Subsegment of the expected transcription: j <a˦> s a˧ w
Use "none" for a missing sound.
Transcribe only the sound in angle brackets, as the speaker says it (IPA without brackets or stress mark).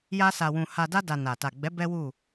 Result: a˦